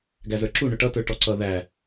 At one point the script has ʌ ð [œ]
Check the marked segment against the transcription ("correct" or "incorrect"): incorrect